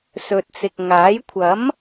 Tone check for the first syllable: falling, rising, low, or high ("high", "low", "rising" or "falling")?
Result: low